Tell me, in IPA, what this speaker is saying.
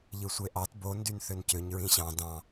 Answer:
ʎɯsʷeʔɑt bo ndynθøncøɲ ɹĩɕɑ̃ dɑ̃

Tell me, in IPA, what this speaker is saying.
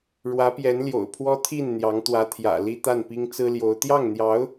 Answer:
ɻwä˧˥pjɛ˧˥nljo̰˨˩ʊ̯pʰwɔ˥ t̪ʰi˥˩n n̪jɑ˧˥ŋt̪wä˧˥t̪ʰjä̰˨˩ li˥t̪a˥˩npi˥ŋ t͡sɹ̩˥ljo˧˥ʊ̯ t̪jɑ˥˩ŋn̪jɑ˧˥ʊ̯

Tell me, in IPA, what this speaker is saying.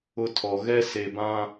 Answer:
ʊ˦tʰɔ˨ ɣɛ˦se˨bã˦

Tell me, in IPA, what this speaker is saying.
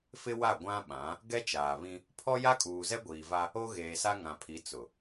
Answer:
fɪ˦wa˦˨ ɡʷã˦ɓã˨˦ | ɡɛ˦t͡ʃaː˨βĩ˦ | pʰɔ˦ja˦kʼuː˨zɛ˦ ɡʷiː˨va˦ | o˦ɣeː˨sa˦ ŋã˨pʰi˨˦ t͡sʊ˨

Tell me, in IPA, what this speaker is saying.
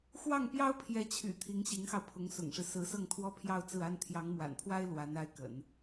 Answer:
xwɑ˥˩ŋpjɑ˥ʊ̯pʰjɛ˧˥t͡ɕʰy̰˨˩ t̪ʰi˧˥ŋɕi˧˥ŋxɑ˧ʊ̯pʰʊ˧˥ŋ sʊ̰˨˩ŋʂɻ̩˦ sɹ̩˧˥sɤ˥˩ŋt̪ʰwɔ˥ pʰjɑ˥˧ʊ̯t͡sɹ̩˥˩a˥n t̪ʰjɑ˧˥ŋmwa̰˨˩npʰwa˥ɪ̯ lwa˧˥n a˥ɪ̯kə̰˨˩˦n

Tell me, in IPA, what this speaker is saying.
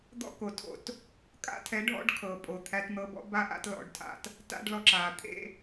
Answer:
d̪ɔ̰˦ko˨ tʰo̰˦˨t | kʼa̰˦tʰɛ˨˦ ɖʱɔ̰˦ɖkʰɤ˨ pʼo˨ t̪ʰæ˧tn̪ɤ˧bɔ̰˦ ba˦ʔa̰˦tlɔ̰˧ɖtʰa̰˧t | ta̰˦ɖlɔ˧ǁaː˨t̪ʰḛ˦

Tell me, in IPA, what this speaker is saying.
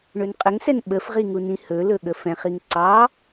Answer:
ɳɵnqʼəŋsɛn ɓəfʁi ŋunĩhɵlɵ ɠəfɛ̃χiŋ ǀɑ

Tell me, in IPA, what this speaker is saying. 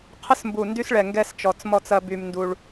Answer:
qʰə˧smbu˨˩ndy˧sɭɛ˨˩ ŋɡɛ˧st͡ʃɔ˨˩t͡smɔ˧t͡sɐ˧ by˧mndu˧ɭ

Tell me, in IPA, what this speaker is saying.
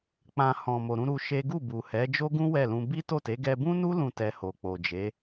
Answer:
k͡pã˨ hɔ̃˨mo˨ɾũ˧ ɾu˧ ʃe˦ ɡu˦˨bu˨hɛ˨˦ d͡ʒo˦ɡũ˦ wɛ˦˨lũ˧ bi˦to˦˨te˨˦ ɡɛ˧bũ˦nu˦ lũ˦˨tɛ˧ho˨ k͡po˨d͡ʒe˨˦

